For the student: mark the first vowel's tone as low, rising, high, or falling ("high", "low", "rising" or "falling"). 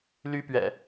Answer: high